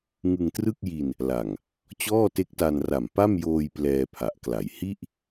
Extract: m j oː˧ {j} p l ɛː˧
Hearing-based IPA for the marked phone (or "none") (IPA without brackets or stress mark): j